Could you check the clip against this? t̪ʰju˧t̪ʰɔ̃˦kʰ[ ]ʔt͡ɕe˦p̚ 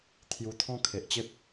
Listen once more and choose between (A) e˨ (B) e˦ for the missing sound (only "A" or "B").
A